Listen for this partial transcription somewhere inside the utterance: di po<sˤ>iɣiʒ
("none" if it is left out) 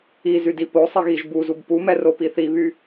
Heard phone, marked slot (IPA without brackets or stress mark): sˤ